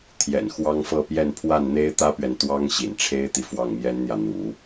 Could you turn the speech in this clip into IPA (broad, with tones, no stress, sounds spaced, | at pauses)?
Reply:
t̪ʰ j ɛ̰˨˩ n x w ɑ˥ ŋ f ɤ˥˧ p j ɛ˥˧ n pʰ w a˥˩ n n̪ e˥ ɪ̯ t̪ ä˥ p ɥ ɛ˨ n t̪ w ɑ˥ ŋ ɕ ḭ˨˩ n ʈ͡ʂʰ e˥ ɪ̯ t̪ i˨ f w ɑ˥˩ ŋ m j ɛ˥ n n̪ j ä˨ n̪ ṵ˨˩˦